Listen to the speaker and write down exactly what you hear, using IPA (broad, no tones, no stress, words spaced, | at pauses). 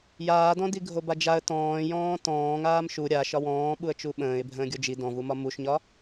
jaːdɔ̃di ɡʱobad͡ʒaə̯ tɔ̃ːjɔ̃ː tɔ̃ː ŋaːmʃu ɾʲa ʃɒwɔ̃ː ɓuə̯t͡ʃuɓə̃ːɪ̯ bʱə̃ːɡʲod͡ʒi dɔ̃vumɒ muʃɲɒ